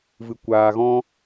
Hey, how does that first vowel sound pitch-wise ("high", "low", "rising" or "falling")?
low